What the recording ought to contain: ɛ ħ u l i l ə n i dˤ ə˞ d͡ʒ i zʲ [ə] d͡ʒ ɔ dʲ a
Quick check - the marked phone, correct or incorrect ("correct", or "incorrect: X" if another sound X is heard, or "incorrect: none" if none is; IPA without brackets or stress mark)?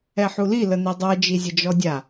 correct